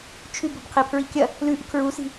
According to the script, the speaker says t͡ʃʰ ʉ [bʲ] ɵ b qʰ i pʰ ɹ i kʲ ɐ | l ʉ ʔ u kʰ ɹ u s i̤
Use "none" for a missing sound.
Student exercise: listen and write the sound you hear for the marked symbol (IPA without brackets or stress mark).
b